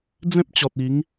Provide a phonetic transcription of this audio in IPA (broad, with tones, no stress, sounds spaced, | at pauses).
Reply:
d͡z ẽ˦ p̚ t͡ɕ ɔ˨ t̚ i˨˦ ŋ